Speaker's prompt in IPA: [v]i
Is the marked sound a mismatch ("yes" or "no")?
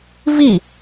no